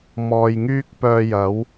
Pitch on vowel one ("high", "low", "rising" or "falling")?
low